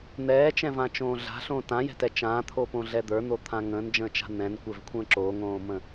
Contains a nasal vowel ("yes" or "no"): yes